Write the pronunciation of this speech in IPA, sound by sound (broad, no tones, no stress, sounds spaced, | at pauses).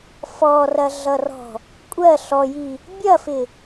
f ɔ r ɐ ɮ ʌ r ɔ̤ | kʷʼ ɜ ɬ ɔ j i | bʲ ɐ f ɪ